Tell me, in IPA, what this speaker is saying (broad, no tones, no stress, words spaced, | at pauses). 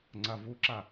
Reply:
ŋ͡ǀavuǁa